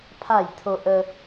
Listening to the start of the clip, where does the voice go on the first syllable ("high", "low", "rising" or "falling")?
falling